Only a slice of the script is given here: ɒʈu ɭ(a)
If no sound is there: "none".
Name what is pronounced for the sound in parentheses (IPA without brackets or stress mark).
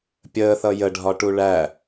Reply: æ